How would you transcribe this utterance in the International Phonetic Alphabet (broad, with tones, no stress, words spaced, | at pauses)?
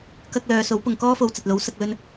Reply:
kɐ˥k̚lœː˨˧ so˨˥wpʊ˨ŋkɔː˥fo˨˧w t͡sɐ˨t̚lo˨˥wsɐ˧k̚ lɵ˥n